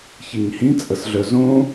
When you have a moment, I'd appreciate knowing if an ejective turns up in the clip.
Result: yes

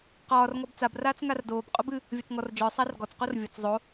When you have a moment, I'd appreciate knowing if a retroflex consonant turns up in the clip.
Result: no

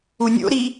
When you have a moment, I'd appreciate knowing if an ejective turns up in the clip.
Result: no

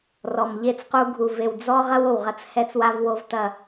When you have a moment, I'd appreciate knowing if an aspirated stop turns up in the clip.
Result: no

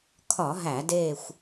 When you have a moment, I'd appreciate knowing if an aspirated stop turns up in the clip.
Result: yes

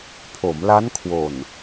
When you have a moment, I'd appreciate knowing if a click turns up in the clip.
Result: no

